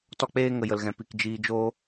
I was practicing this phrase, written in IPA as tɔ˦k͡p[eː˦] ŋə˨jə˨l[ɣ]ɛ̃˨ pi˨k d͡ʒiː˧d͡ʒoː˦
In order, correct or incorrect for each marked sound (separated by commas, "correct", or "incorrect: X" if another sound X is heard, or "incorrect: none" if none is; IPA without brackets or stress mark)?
correct, correct